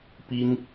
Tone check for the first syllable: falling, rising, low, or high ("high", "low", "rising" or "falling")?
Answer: high